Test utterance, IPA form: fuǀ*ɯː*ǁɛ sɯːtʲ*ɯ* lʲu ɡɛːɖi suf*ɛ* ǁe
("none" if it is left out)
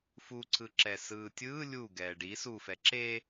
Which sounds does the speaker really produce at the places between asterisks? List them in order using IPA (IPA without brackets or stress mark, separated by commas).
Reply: ɯ, ɯː, ɛ